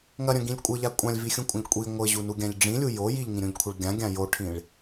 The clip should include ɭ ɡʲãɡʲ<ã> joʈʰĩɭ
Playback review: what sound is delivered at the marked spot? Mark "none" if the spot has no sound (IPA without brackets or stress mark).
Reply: ã